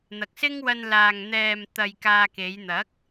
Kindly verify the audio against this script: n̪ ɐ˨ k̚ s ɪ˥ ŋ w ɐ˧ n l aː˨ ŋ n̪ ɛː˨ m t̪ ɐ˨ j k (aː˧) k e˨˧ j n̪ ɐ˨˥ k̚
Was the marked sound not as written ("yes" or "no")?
no